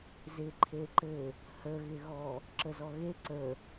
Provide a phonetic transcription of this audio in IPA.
z ɪ ǃʰ e ǃ ɘ | h ə ɣ ɪ ɣ ɔ | ǁ ə z ɔ ɣ e ǀ ə

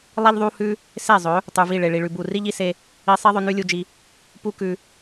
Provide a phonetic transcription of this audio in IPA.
lˠ i˦ ʎ ðˤ u˦ h ʉ˦ | s e˦˨ zˤ ɵ˨˦ | tˤ ʉ˨ v i˦˨ ɭ e˨ ɭ i˨ ɭ ʉ˨ b u˦˨ r i˦ ʎ i˧ s e˦ | i˧ sˤ i˦ ðˤ ɵ˧ n ʉ˦ lʲ u˧ d͡ʒ i˧ | p u˦ k ʉ˧

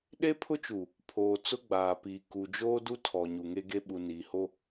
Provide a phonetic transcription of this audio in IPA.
ɗ e˦ pʰ ʊ˦ t͡ʃ u˨ | pʰ oː˨ t͡s ʊ˦ ɡ͡b aː˨ p iː˨ k u˨ d͡ʒ oː˦ d u˦ tʰ ɔ˨ ɲ u˨ ŋ e˦ ɡ e˦ ɓ u˨ n iː˨ h o˦

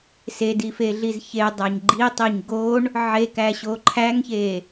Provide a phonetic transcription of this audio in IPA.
s e d i f e ɮ i z ç e dˤ æ ɲ ɡ͡ǃ i tˤ i ɲ ɡ o ɳ | ʕ e k æ ɕ o ǃʰ æ ŋ ç e

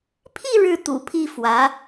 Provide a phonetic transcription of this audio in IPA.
pʰ i˥˧ ɻ ɻ̩˥˩ t̪ ṵ˨˩ pʰ i˥˩ f w ä˧˥

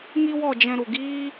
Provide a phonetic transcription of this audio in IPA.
ŋ i˦ w ɔ˦˨ d͡ʒ ɛ̃˧ ɾ u˨ ɡ iː˦

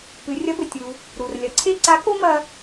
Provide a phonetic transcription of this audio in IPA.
p ɨ˩˧ rʲ ɐ˧˥ b ɘ˩ tʲ u˩ | ɾ u˩ r lʲ ɐ˩˧ ǀʰ e˥ ǀ a˧˥ k o˥ m ɐ˧

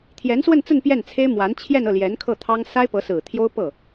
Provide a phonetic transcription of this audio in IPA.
t̪ʰ j ɛ˧˥ n s w ə˥˧ n t͡s ə˥˧ n p j ɛ˥˩ n t͡sʰ e˥ ɪ̯ m w a˧˥ n t͡ɕʰ j ɛ˥˧ n ɤ˥˩ l j ɛ˧˥ n kʰ ɤ˥˩ t̪ʰ ɑ˥ ŋ s a˥ ɪ̯ p ɤ˧˥ s ɹ̩˨˩ t̪ʰ j o˥ ʊ̯ p ɤ˥˩

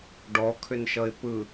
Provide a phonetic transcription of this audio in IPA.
ɖ ɔ kʰ ʏ n ʃ ʌ ɪ̯ p ɯ

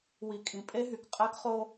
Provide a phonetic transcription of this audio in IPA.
w i˨ kʼ ĩ˨ pʼ e˦ ɦ y˨ k qʼ æ˦ k χ o˦

